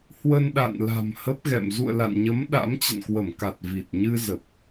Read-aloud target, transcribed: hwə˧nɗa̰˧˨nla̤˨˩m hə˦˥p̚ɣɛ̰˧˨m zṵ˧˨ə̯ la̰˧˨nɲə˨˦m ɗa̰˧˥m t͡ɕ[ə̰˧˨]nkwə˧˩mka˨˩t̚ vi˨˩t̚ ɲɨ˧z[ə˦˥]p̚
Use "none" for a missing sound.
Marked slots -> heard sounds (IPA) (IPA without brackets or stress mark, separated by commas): ə̰˧˨, ə˨˩